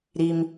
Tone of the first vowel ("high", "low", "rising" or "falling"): low